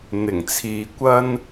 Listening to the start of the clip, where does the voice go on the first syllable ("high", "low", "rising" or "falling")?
low